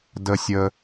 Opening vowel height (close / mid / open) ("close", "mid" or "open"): mid